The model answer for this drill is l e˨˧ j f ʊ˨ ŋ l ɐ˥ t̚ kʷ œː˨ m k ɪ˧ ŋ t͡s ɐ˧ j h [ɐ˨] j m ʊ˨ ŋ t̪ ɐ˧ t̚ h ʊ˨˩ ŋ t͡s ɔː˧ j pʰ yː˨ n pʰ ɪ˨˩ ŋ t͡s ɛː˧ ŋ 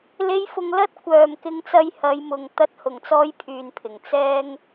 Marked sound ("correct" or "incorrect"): incorrect